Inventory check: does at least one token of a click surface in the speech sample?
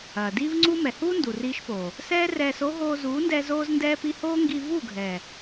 yes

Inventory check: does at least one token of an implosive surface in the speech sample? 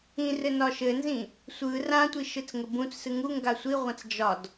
no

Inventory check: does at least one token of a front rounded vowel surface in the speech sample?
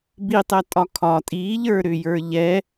yes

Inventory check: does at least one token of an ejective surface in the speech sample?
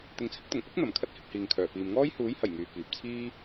no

